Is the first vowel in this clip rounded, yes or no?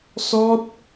yes